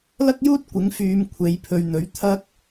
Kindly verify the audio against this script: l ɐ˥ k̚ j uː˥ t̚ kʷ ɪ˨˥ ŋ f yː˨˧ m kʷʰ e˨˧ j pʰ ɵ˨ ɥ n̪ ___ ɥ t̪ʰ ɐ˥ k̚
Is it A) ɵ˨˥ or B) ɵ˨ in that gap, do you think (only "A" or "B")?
A